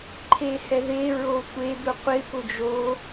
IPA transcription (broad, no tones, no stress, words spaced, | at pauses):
ǃʰehɛðe ɹotʷe d̪ʊqʷɪ pʊd͡ʒo